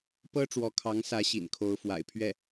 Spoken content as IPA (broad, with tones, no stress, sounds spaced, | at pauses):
p ɤ˥ ʈ͡ʂ w ɔ˧˥ kʰ ɑ˧˥ ŋ s ä˧˥ ɕ ḭ˨˩ n kʰ o˧˥ ʊ̯ f w a̰˨˩ ɪ̯ pʰ ɥ ɛ˥˩